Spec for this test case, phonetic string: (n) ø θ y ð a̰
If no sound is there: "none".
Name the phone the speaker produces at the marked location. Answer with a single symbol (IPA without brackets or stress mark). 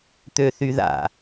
t̪